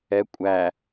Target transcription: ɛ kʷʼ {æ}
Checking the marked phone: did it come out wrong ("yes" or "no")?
no